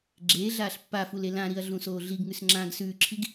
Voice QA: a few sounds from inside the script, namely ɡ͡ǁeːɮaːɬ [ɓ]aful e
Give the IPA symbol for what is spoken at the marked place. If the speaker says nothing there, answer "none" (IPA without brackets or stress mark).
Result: pː